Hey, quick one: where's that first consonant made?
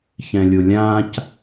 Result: palate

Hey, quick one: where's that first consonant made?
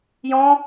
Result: palate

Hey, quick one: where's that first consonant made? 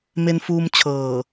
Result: lips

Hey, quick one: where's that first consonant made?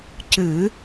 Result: palate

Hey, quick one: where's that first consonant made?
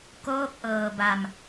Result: velum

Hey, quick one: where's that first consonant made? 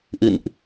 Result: throat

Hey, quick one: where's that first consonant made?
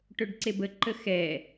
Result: retroflex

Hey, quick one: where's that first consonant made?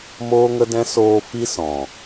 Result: lips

